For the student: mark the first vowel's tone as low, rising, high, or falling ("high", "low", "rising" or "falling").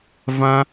high